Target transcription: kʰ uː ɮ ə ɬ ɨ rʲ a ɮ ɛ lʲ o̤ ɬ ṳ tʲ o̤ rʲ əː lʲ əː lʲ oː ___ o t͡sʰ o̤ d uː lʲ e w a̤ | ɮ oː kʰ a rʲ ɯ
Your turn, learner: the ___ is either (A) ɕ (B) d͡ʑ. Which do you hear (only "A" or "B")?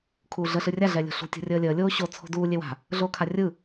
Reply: A